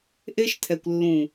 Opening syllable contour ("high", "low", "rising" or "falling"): high